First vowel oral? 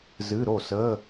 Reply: yes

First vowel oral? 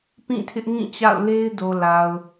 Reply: no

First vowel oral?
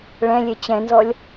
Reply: no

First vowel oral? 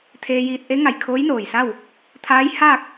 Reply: yes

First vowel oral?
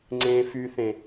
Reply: no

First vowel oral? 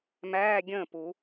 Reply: yes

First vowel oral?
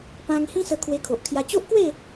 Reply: no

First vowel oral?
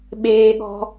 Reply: yes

